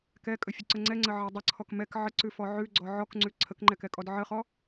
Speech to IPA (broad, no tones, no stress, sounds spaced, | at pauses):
k ɛ kʼ ə fʲ ʉ ǀ ə ŋ͡ǀ ɛ ŋ͡ǀ ə ʕ ɛ dˤ ə ǀʰ ɔ k m ɛ k ʕ ə ǀ ʉ f ɔ ʕ ʉ ɡ͡ǀ ɔ ʕ ɔ k ŋ͡ǀ ʉ ǀʰ ə k ŋ͡ǃ ɛ k ɛ kʼ ɔ d ʕ ə χ ɔ